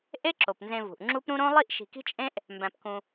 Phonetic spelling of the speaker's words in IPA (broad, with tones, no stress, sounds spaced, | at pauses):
ʔ e˦ ǁ o˩ p n z ẽ˨ v ṳ˩ ʔ ŋ͡ǁ u˦ p ɾ ũ˦ ɾ õ˥ lˠ i˥ ʔ ʃ i̤˨ k i̤˦ t͡ʃʼ ẽ˦ ʔ | m b æ̃˨ p k ũ˨